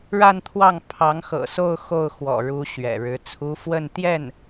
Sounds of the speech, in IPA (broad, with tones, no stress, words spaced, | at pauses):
ɻa˥˧nt̪ʰwɑ˥˩ŋ pʰɑ˧˥ŋxɤ̰˨˩so˥˧ʊ̯ xo˥˩ʊ̯xwɔ̰˨˩ɻu˧˥ ɕɥɛ̰˨˩ɻɻ̩˧˥t͡sʰu˥ fwə˥˧n t̪jɛ˥˩n